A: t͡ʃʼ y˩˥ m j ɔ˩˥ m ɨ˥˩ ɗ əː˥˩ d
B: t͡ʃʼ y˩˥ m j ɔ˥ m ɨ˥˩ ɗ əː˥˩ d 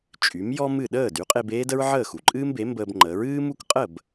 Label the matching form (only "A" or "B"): B